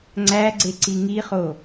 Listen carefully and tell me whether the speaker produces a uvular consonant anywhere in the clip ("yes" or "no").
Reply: yes